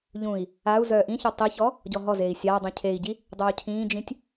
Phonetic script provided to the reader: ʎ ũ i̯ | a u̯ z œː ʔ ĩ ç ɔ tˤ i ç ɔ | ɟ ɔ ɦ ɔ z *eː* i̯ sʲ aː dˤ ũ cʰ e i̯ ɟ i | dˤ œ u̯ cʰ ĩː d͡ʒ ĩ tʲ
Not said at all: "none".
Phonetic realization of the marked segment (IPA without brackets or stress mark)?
eː